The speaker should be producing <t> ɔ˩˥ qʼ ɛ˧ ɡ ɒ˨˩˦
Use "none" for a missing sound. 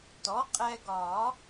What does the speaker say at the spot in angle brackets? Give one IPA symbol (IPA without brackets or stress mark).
t